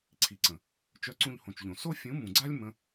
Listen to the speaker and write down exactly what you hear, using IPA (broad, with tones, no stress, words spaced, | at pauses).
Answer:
ǀʰi˨ǀə̃˨ | t͡ʃœ˧ǀũ˧ʎhõ˨t͡ʃʎõ˨ so˦ fʲũ˨˦mũ˨ɡ͡ǀa˦lʲ mə̃˦